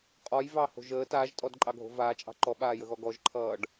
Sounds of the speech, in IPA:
qʼ ɔ j v ɑ h o̤ ʒ əː t aː ʒ tʼ ɔ d ǃʼ ɑ ɡʱ o̤ v aː t͡ʃʼ ɑ̤ ǃ ɔ ɓ aː j ə ɣ ɔ ɡ ɔ ʒ ǃʰ ʌː ɖ

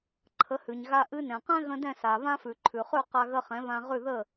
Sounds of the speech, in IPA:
ǃʰ ə˩˥ h ʉ˩ ɲ ɣ a˧ ʔ ɨ˧ n ɛ̃˩ q ɛ̃˥ ɣ ə̃˧ d ɛ̃˥˩ s a˩ β ã˥ f ʉ˩ ǃʰ ʉ˩ χ ʉ˥˩ q a˧ ɣ ə˧ χ ɛ̃˩˥ β ã˧ ʁ ʉ˥˩ ð ə˥˩

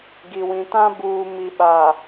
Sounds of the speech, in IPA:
ɡ i˨ w ĩ˨ t ã˦ b uː˨ m i˨ ɓ a˨

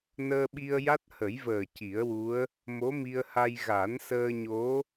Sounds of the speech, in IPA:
n əː˧ ɓ i˧ ə̯ j a˦˥ t̚ h ə˨˩˦ j v əː˨˩ c i˨˩˦ ə̯ w u˧˥ ə̯ | m o˧˥ m i˧ ə̯ h a˧ j ɣ a˨˩˦ n s əː˧ ɲ o˧˥

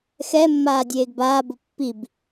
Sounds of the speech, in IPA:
x ɛ mː aː dʲ eː ɡ b aː b ʊ pː i b

